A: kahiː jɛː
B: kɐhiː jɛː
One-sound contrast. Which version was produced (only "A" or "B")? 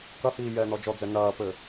B